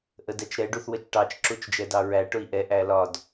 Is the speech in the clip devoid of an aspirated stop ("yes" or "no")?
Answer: yes